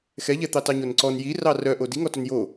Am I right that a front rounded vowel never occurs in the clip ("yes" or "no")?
no